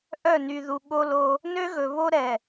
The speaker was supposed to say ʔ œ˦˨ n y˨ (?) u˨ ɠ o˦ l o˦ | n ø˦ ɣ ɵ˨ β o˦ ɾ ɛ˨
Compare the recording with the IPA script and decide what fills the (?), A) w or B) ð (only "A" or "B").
B